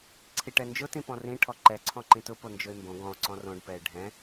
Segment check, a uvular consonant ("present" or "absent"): absent